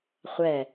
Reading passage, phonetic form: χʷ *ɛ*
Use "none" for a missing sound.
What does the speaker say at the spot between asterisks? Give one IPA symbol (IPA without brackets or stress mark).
ɛ